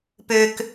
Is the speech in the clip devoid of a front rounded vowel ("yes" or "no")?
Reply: no